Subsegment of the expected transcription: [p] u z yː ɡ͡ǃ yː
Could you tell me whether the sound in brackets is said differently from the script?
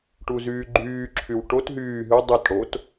yes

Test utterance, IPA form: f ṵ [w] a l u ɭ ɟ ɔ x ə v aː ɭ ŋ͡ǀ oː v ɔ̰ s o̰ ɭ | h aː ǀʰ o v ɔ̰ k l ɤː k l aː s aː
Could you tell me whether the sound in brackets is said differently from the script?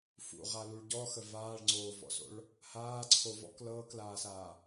yes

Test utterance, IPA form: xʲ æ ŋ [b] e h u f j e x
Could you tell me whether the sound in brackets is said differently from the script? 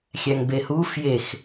no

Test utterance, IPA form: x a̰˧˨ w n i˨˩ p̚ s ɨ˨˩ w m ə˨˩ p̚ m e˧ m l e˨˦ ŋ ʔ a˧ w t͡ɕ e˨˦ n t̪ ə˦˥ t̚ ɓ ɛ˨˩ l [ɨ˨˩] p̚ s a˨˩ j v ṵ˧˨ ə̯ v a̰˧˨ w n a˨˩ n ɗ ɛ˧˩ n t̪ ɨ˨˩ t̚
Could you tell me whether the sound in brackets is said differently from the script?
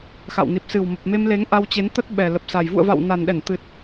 yes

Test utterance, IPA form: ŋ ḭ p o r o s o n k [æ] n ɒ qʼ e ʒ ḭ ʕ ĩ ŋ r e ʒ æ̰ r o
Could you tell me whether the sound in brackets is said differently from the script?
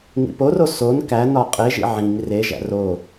no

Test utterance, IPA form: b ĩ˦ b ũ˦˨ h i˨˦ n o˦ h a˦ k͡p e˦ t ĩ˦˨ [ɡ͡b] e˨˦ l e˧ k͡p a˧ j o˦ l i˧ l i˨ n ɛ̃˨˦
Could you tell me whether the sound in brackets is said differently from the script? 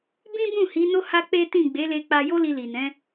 no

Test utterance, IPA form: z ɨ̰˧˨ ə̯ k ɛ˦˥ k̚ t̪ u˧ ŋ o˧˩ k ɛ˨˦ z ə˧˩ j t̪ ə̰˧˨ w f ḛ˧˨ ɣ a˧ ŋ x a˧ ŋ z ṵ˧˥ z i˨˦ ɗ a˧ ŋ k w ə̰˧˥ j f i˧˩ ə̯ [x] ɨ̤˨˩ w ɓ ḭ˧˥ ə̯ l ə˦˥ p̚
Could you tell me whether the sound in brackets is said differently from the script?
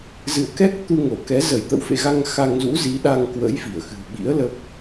no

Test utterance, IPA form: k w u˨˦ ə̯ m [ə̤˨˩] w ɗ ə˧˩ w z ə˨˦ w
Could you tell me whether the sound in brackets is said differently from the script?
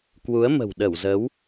no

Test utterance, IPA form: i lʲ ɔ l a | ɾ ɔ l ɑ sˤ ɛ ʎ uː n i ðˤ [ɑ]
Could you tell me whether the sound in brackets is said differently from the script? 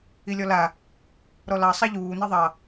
no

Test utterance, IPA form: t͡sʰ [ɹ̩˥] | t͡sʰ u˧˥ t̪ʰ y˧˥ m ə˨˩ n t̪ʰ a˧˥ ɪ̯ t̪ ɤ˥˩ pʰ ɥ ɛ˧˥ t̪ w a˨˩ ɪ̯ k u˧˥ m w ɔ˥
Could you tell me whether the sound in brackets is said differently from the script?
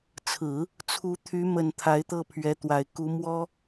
yes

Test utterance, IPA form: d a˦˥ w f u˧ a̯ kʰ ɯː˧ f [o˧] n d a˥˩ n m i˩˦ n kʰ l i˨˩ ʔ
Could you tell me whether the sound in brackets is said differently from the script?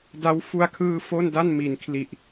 yes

